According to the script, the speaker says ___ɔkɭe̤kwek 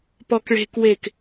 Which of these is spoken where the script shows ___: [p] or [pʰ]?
p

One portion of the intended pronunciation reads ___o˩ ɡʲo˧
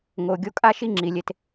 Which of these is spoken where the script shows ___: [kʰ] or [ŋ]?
ŋ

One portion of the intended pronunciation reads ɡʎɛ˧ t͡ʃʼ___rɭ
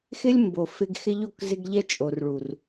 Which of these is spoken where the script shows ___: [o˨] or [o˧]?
o˨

